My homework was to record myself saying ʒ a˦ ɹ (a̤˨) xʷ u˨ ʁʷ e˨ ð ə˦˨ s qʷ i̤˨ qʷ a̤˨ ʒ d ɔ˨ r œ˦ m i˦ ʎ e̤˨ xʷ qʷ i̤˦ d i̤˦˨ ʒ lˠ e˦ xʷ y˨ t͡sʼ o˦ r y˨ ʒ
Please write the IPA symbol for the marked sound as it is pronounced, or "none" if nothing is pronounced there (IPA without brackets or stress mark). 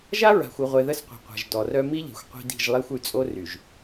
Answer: a̤˨